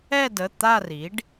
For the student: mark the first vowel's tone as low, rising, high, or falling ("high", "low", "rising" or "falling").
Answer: falling